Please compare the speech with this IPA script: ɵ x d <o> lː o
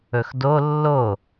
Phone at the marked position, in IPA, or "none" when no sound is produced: o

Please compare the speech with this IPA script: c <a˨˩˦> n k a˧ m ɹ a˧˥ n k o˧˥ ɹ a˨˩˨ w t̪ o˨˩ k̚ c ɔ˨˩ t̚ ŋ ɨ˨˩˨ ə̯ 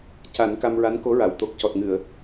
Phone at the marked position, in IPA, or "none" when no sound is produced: a˨˩˦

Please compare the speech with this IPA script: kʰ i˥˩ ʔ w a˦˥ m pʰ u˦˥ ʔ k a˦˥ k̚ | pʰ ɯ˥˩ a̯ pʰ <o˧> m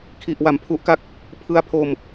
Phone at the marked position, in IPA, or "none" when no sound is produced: o˥˩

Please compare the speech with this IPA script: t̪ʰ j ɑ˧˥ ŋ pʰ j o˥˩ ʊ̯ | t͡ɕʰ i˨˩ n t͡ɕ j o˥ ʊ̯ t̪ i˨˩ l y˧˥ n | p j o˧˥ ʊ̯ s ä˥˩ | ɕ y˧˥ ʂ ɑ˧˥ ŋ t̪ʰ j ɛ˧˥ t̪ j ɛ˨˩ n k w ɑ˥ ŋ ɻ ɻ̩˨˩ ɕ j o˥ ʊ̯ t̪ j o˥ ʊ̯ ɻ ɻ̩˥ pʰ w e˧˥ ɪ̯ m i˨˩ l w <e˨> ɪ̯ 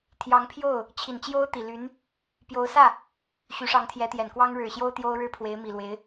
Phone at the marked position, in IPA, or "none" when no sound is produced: e˧˥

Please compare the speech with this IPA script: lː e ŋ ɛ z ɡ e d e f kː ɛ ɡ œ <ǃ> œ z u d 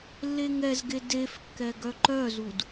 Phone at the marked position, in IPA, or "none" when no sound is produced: ǃ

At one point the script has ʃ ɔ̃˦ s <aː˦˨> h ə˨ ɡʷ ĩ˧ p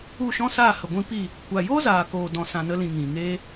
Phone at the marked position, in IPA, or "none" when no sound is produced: aː˦˨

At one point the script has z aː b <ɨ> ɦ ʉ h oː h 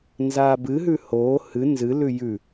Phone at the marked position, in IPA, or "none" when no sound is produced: ɨ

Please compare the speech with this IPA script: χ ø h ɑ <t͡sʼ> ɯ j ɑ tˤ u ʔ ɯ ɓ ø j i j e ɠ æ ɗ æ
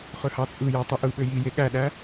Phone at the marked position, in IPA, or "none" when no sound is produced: t͡sʼ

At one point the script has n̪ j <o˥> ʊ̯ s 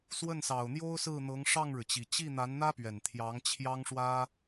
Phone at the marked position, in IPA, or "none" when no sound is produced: o˥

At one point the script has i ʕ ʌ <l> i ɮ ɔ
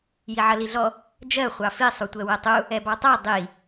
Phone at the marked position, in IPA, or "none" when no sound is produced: l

